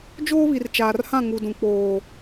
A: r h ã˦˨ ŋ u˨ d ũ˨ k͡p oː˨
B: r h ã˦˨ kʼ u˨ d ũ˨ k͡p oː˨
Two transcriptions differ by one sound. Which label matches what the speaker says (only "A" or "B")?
A